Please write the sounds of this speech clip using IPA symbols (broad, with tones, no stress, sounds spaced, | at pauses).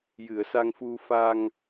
j ɨ˨˩˨ ə̯ s a˧ ŋ f u˧ f a˧ ŋ